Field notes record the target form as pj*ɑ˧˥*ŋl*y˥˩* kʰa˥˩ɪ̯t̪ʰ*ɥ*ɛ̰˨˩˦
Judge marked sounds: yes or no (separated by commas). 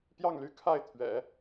no, no, yes